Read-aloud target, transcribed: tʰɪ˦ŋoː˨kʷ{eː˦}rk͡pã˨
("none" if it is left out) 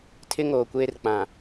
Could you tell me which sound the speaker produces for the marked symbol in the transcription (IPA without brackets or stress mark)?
eː˦